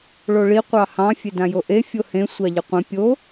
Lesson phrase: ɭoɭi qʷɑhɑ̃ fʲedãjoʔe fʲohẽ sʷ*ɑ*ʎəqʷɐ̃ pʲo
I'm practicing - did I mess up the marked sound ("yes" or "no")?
no